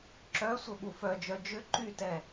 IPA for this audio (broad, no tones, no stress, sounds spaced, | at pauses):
ǁ œ sʷ ə ɓ u f œ d͡ʒ œ d͡ʒ ʏ ǃ y t ɛ